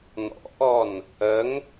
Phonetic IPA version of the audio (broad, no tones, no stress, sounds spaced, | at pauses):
n ɔ̰ ʔ ɔ n | ə ŋ